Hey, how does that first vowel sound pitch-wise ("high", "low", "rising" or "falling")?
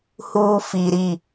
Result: low